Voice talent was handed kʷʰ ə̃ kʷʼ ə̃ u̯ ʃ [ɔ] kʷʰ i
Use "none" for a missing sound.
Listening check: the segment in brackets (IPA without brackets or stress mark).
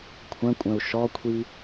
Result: ɔ